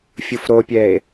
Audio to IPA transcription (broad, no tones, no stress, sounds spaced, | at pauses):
fʲ u f ɾ o pʲ ɛ e̯